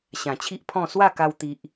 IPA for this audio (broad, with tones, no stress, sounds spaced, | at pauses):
ɕ ã˨˩ t͡ɕʰ i˦ ʔ pʰ ɔ̃˥˧ s w a˥˧ k a˧ w t̪ i˨ ʔ